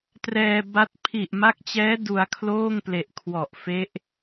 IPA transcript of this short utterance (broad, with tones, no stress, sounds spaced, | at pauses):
t r ɛː˧ b a˦˥ t̚ pʰ i˨˩ ʔ m a˦˥ k̚ t͡ɕ ɛː˦˥ d u˧ a̯ kʰ l oː˥˩ ŋ p l e˨˩ ʔ kʰ w ɔ˨˩ ʔ f e˦˥ ʔ